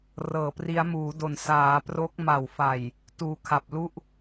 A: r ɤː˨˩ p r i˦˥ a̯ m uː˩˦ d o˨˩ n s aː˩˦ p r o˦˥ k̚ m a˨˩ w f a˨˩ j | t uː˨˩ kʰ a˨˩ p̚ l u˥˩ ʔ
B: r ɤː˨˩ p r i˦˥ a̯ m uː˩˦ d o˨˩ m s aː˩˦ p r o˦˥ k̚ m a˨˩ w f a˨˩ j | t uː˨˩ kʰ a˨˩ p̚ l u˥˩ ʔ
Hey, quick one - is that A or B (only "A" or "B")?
A